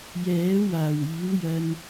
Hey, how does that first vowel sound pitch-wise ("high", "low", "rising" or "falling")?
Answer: rising